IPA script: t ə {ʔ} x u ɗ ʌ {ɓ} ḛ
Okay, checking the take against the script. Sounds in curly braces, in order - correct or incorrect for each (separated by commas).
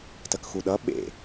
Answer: incorrect, correct